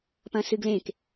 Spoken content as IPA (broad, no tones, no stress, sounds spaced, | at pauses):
p ɐ̃ s ɨ ɡ l ẽ k